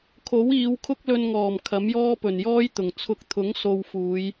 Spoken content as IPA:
kʰo˨˥wiː˨˧wkʰʊ˥k̚ lɵ˧nŋɔː˨˩m kʰɐ˨˥mjɔː˥pɵ˨˩njɔː˥j t̪ʊ˨˩ŋ t͡sʰʊ˨˥k̚t̪ʰʊ˨˥ŋ so˧wfuː˨˧j

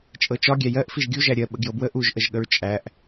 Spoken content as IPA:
t͡ʃʼɤt͡ʃɒɡʲæ jɜʔ fiʒɡʲuʒæ ɾʲɜ ɓəɡjɤbwə ʔuʒʔəʒɠəɹ t͡ʃʼæʔ

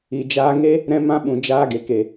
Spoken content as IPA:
i˨d͡ʒaː˧ ŋe˧ | ɾɛ̃˧mã˧ɓũ˨ d͡ʒaː˧ɡe˨ ke˨

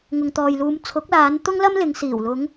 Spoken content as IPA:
ŋʊ˨ŋt̪ɔː˨jluː˨˧m t͡sʰʊ˨˥k̚laː˨˧nt̪ʊ˥ŋ lɐ˥mlɪ˨˧ŋsiː˨˩wlʊ˨˧ŋ

